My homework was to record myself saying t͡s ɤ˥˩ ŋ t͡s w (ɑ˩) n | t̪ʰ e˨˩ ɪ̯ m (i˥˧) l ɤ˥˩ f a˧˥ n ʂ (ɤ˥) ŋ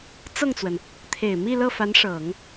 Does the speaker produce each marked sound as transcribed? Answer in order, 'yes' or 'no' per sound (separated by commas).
no, yes, no